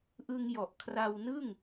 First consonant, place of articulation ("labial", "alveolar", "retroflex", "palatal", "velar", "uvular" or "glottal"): glottal